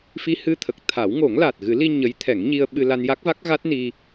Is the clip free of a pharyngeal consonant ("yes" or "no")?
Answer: yes